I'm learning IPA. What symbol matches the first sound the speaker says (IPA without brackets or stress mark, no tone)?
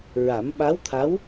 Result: ɹ